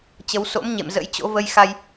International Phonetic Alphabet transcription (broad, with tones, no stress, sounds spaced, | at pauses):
t͡ɕ ə˨˦ w s o̰˧˥ m ɲ ḛ˧˨ m z ə̰˧˥ j t͡ɕ o̰˧˥ v ə˧ j x a˧ j